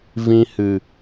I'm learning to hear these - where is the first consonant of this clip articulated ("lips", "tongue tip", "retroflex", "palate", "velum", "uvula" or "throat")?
lips